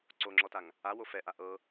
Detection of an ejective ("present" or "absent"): absent